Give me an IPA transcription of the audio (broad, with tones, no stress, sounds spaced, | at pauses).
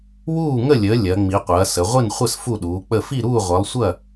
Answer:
w uː˥˨ ŋ ə˥˨ lʲ əː˨˦ lʲ ɐ˨˦ ŋ͡m i˨˦ qʷ ɐː˨˦ s ə˨˦ ʁʷ i˥˨ n χʷ ə˥˨ s f u˥˨ ɗ uː˨˦ k͡p ə˥˨ f i˥˨ ɾ uː˥˨ ʁʷ ɐ˨˦ lˠ sʷ ɐ˥˨